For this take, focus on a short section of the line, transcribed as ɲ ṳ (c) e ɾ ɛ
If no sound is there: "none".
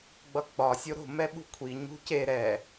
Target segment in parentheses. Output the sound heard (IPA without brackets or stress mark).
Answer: c